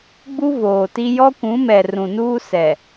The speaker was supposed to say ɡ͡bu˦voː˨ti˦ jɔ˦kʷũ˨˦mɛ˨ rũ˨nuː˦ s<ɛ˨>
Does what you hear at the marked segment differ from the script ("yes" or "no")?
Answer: no